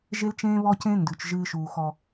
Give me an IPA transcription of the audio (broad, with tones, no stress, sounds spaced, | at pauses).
ʒ e˦ l t͡ʃ ẽː˦ β ɔ˦ c ẽ˦ n d ʉ˨ t͡ʃ ʒ ɨː˦ ʃ uː˨ x ɔ˨